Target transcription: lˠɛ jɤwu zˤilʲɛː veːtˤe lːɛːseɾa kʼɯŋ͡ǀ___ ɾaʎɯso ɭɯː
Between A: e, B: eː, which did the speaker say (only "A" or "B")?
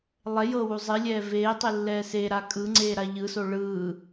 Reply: B